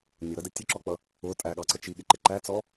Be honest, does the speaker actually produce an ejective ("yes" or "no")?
yes